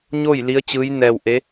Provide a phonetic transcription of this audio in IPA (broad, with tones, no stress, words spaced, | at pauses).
ɲo˥˨j li˧˥ə̯t͡ɕɯː˧˥jnɛː˧wʔe˧˥